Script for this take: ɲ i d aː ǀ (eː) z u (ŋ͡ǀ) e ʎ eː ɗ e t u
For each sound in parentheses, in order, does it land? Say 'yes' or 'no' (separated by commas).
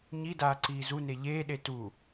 no, no